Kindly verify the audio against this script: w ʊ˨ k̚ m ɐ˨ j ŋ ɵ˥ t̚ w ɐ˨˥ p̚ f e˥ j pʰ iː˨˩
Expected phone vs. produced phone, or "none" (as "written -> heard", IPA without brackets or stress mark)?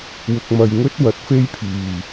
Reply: p̚ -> t̚